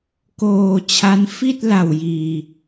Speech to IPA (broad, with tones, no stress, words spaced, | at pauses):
koː˧t͡ɕʰa˦˥n fi˥˩t̚ la˨˩wjiː˨˩